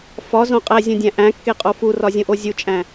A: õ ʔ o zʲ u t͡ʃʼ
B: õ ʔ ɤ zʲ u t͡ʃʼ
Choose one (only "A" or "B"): A